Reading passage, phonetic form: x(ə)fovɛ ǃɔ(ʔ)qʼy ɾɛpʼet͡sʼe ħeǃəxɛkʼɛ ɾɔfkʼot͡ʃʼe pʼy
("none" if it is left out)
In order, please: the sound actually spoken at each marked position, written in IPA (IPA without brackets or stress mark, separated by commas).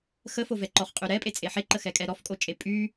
ə, χ